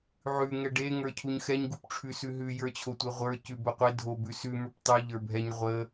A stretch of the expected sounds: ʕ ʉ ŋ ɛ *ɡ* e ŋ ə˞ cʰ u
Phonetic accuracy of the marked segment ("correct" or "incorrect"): incorrect